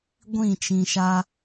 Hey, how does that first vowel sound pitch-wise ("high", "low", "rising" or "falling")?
falling